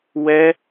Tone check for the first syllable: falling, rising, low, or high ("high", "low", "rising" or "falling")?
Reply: high